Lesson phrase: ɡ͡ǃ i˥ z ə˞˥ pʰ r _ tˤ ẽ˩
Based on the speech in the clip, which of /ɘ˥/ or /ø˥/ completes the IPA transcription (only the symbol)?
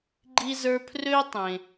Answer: ø˥